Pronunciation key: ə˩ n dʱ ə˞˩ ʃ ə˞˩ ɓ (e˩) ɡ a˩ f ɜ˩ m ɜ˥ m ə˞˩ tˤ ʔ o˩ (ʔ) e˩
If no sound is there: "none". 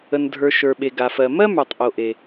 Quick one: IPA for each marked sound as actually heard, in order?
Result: e˩, ʔ

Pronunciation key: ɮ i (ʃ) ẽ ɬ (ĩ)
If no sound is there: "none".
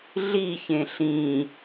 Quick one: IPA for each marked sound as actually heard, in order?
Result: ç, ĩ

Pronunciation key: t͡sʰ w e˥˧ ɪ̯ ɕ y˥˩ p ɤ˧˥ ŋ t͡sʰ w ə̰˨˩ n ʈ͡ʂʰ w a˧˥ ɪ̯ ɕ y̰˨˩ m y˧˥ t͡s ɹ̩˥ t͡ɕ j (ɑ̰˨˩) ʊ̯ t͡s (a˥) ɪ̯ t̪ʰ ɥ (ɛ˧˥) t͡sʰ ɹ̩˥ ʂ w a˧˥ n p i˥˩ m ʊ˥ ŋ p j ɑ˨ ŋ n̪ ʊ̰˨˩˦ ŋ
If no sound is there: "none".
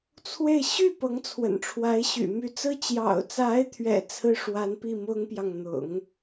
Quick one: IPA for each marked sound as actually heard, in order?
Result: ɑ̰˨˩, a˧˥, ɛ̰˨˩

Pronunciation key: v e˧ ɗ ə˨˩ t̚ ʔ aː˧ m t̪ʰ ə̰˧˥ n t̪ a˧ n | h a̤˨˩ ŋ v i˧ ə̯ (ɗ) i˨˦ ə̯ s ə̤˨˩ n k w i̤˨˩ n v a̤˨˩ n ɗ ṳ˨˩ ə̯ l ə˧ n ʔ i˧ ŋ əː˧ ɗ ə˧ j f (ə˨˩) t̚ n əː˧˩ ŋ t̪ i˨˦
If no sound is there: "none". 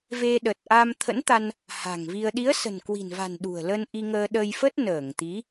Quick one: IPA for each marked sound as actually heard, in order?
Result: ɗ, ə˦˥

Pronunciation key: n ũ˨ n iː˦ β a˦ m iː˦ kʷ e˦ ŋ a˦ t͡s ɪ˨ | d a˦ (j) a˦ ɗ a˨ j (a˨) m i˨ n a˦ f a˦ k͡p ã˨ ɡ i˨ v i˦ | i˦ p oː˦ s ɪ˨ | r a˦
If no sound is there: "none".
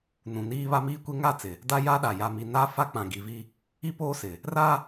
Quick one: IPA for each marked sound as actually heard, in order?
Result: j, a˨

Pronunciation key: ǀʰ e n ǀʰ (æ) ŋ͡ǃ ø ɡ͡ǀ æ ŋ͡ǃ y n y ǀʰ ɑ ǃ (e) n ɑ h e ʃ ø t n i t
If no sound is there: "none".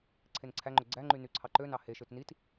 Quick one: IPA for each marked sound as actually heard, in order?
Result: æ, ø

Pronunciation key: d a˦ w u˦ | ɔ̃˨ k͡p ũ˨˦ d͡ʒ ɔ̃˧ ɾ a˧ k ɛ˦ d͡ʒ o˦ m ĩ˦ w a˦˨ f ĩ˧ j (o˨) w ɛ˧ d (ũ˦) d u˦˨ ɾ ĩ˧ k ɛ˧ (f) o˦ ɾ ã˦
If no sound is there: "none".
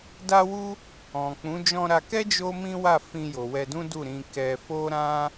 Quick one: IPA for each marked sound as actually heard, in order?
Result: o˨, ũ˦, f

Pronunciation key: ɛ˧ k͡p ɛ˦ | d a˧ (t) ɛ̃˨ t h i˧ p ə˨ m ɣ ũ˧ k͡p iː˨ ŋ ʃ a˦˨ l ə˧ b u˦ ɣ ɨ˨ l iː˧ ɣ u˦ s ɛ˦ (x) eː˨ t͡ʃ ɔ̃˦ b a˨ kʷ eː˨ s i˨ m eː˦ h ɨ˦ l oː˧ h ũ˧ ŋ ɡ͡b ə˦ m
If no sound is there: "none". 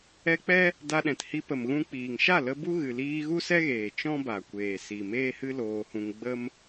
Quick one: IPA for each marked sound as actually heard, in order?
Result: ɗ, ɣ

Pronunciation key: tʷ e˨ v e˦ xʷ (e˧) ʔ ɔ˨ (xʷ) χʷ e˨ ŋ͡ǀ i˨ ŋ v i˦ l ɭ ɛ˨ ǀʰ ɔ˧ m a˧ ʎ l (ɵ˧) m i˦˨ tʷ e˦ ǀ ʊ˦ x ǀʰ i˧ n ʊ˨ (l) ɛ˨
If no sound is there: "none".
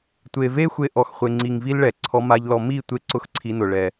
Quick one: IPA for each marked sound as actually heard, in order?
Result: e˧, x, ɔ˧, ɭ

